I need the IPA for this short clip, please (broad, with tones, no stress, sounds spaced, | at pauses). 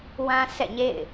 w ã˦ sʰ ɛ̰˦˨ ɲ ḛ˦˨ ɪ̯